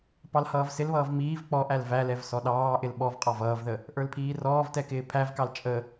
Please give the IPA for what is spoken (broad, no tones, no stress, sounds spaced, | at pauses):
p ɑ l h ʌː v s ɪ l β ʌː v m iː v k͡p ɔ ʔ æ l v æ l ɛ v s ɔ ɗ ɑː ʔ ɪ l ɓ ɔ v qʼ ɑ v ʌː v ð ə | ʔ ə˞ l pʰ iː r ɔː v t ɛ k ɪː pʰ æ v k ɑ l t͡ʃʼ ə